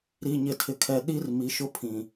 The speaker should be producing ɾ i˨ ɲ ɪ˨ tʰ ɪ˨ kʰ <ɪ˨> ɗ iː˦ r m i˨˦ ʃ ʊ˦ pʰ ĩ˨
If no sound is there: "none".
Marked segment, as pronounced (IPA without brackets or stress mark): ɛ˨